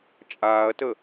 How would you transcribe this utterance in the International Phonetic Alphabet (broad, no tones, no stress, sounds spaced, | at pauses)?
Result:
t͡ʃʼ aː ɐ̯ t ə